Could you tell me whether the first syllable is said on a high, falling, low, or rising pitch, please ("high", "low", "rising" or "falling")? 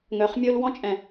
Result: low